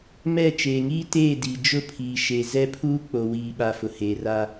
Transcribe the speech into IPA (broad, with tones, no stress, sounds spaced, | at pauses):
m ɛ˦˨ t͡ʃ eː˨ ŋ iː˦ t eː˦˨ d iː˨ d͡ʒ ʊ˦˨ pʰ iː˨ ʃ e˨ z ɛ˦ pʰ uː˦ k͡p o˨ w iː˨ ɓ a˨ f ʊ˨ h eː˨ r a˦